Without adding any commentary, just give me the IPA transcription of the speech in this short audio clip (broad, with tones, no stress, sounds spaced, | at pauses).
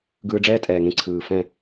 ɡ ɯː˧ ɖ͡ʐ ɛː˦ tʼ ɛː˨ ŋ ẽ˧ ǀʰ ɯː˨ f ɛ̃˦˨